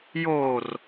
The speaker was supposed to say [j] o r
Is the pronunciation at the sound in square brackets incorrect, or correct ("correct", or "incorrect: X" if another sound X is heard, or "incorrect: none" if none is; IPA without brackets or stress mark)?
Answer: correct